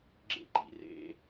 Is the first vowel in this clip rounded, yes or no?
no